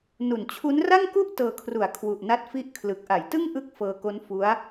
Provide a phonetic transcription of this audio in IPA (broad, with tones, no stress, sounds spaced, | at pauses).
n u˨˩ n t͡ɕʰ u˦˥ n r a˥˩ ŋ k u˥˩ ʔ t ɤː˧ kʰ r u˨˩ a̯ kʰ w u˨˩ ʔ n a˦˥ t̚ f i˥˩ ʔ kʰ l ɯ˨˩ k̚ ʔ a˩˦ j t ɯ˥˩ ŋ ʔ ɯ˥˩ k̚ f ɤː˧ k o˦˥ n f u˦˥ a̯